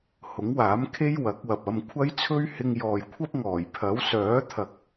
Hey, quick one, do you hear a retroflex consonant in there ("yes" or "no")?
no